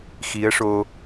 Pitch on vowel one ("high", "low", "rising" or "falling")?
rising